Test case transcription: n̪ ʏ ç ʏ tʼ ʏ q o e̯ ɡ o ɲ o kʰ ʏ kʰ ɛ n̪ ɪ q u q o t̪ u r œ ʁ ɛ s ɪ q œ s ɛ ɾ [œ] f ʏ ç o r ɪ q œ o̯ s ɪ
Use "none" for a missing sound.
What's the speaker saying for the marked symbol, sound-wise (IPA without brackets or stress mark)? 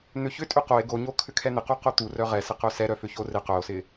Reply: œ